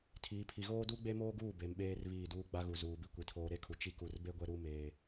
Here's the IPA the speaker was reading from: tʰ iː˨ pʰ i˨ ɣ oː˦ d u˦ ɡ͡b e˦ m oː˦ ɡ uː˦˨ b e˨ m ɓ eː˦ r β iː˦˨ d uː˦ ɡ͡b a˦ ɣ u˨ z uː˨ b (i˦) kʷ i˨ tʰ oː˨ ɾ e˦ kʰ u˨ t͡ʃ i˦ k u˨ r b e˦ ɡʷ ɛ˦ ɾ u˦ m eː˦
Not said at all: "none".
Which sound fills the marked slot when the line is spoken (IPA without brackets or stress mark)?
i˨